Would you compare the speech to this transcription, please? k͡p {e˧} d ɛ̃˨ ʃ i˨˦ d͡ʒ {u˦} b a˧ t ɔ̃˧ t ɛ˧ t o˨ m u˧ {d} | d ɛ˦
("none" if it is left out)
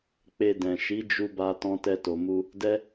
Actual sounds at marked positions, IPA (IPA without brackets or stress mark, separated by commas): e˧, u˧, none